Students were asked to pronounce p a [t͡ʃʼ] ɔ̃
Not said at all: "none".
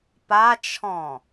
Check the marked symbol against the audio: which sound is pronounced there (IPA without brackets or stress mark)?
t͡ʃʰ